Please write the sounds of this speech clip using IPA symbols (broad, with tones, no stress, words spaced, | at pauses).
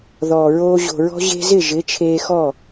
ðɔː˨ɹoː˧ ʑo̤˨ɹɔ̤˧ ʑe̤˧zɪ˦˨ ʒɪ˨˦t͡ʃʰeː˧xɔ˦˨